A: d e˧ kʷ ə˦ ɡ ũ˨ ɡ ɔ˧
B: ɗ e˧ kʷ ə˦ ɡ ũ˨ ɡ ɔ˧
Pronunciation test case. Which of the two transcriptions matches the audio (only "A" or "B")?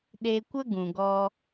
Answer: B